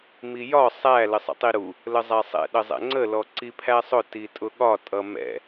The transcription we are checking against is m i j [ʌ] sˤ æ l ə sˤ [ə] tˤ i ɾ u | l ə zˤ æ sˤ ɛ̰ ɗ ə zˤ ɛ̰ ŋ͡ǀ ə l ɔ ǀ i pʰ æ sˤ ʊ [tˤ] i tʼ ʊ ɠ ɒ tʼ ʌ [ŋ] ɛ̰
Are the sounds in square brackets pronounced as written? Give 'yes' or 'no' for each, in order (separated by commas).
no, no, no, no